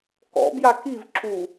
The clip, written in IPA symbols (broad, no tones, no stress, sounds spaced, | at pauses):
k ɔ̰ b j a k i v ǁ u